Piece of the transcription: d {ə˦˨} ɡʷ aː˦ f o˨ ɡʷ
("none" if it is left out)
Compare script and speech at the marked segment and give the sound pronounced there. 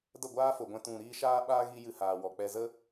ə˦˨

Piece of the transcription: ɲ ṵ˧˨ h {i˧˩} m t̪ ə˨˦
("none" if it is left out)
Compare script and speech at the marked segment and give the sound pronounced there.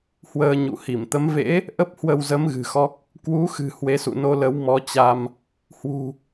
i˧˩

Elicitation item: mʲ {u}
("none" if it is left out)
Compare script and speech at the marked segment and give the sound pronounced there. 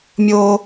o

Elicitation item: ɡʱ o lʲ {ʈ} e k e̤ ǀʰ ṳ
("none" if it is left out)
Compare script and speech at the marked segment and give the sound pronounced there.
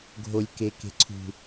k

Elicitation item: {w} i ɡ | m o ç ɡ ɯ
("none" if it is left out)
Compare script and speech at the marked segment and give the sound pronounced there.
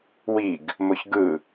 w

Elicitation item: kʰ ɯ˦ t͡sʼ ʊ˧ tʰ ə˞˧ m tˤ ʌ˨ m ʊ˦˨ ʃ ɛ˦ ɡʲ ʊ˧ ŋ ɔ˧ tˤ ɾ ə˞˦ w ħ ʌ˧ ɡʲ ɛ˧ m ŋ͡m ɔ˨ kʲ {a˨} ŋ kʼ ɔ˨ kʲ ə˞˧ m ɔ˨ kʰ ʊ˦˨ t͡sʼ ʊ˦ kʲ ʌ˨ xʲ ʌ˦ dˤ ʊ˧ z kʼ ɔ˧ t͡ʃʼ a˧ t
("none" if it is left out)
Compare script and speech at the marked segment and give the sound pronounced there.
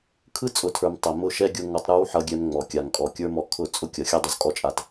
a˨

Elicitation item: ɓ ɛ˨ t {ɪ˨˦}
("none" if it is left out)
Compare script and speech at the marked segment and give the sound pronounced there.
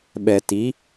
i˨˦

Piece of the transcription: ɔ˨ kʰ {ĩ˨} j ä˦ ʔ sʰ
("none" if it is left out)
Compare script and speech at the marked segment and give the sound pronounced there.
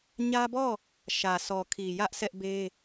i˨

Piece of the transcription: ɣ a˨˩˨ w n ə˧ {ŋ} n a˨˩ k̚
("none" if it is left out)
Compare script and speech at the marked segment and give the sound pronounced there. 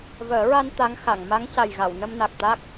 m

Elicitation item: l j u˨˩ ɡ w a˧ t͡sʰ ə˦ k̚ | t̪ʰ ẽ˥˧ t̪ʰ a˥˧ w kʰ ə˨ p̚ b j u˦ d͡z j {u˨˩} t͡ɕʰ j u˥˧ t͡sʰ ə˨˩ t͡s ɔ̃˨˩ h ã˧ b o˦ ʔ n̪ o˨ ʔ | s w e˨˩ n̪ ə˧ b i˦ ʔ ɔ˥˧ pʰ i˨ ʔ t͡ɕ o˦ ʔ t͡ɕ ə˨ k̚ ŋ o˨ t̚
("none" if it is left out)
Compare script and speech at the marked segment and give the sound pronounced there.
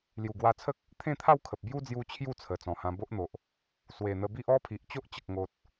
u˧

